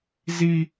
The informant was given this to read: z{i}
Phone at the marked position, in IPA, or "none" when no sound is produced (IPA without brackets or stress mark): i